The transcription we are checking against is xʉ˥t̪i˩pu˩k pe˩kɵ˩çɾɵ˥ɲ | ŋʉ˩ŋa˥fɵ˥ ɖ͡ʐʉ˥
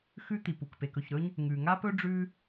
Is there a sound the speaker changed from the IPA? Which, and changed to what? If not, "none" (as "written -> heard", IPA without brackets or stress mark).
f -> p